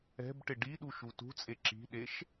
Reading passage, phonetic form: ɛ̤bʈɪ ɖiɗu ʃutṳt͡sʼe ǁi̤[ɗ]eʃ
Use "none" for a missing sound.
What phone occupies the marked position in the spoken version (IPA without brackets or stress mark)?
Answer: ɗ